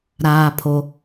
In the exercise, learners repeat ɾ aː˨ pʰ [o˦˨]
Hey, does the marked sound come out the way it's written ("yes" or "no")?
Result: no